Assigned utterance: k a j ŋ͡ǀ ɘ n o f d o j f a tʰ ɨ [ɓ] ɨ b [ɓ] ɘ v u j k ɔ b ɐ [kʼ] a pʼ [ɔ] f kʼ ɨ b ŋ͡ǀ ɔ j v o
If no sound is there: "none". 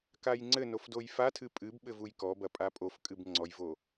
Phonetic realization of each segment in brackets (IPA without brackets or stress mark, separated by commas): pʼ, ɓ, pʼ, o